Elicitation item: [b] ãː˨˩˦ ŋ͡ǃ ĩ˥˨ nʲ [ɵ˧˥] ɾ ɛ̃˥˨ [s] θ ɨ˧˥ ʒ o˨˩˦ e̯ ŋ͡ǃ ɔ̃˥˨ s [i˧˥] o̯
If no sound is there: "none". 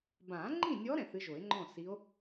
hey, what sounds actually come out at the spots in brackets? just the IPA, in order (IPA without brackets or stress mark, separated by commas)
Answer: b, ɔ˧˥, none, i˧˥